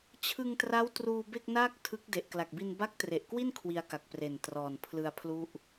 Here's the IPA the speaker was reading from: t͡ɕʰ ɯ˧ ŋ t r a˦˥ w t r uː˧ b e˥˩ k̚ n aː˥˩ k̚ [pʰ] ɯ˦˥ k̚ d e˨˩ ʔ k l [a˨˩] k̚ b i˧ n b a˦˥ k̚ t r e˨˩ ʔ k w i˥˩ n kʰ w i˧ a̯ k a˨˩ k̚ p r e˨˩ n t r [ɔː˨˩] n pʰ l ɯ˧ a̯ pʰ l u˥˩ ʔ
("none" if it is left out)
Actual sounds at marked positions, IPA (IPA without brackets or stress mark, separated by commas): tʰ, a˨˩, ɔː˨˩